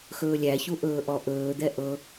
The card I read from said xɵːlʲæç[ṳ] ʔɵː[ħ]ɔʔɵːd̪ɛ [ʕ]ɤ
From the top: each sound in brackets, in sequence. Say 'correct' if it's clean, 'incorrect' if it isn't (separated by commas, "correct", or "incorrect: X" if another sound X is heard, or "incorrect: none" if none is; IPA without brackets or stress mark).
incorrect: u, incorrect: ʔ, incorrect: ʔ